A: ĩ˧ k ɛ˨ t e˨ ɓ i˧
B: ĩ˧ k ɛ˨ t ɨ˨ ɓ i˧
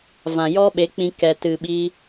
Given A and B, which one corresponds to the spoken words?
B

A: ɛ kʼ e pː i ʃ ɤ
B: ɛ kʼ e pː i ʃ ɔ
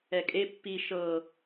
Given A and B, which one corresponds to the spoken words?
A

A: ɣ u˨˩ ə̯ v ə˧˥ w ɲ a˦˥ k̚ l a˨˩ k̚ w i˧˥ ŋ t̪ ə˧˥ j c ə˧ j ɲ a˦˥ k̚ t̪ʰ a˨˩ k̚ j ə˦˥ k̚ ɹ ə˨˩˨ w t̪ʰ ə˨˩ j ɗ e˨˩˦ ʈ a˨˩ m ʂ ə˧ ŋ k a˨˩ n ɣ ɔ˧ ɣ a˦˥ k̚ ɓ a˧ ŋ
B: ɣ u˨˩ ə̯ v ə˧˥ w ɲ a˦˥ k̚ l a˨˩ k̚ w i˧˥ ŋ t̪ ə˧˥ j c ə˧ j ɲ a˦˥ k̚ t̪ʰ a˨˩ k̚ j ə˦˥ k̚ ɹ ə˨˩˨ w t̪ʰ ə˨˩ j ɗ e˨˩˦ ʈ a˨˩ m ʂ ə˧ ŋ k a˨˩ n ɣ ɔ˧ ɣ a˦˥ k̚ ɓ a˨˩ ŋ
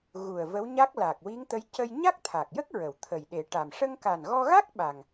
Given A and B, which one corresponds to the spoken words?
B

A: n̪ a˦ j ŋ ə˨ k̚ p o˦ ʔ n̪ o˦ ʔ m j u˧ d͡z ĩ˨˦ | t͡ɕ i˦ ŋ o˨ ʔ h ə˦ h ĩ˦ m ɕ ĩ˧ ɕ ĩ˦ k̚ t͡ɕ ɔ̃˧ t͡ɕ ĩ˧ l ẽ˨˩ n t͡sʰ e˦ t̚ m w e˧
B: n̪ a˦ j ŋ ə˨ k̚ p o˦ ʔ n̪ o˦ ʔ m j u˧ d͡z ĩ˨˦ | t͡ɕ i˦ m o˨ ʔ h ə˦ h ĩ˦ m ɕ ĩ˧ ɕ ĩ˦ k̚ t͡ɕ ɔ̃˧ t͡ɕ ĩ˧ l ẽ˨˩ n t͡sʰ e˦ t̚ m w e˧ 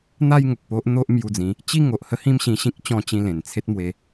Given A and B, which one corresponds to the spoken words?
A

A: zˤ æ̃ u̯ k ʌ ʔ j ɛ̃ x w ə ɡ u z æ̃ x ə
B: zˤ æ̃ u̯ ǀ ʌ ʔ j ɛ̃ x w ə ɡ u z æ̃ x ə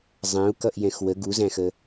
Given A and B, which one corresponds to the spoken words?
A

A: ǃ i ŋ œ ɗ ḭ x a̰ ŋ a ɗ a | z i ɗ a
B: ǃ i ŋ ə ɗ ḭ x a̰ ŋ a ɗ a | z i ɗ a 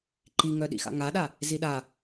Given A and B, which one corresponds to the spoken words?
A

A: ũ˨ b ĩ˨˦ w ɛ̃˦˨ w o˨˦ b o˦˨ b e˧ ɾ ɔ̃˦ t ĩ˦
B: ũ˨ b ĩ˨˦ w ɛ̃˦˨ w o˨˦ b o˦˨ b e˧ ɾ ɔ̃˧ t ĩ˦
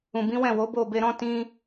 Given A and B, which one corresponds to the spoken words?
A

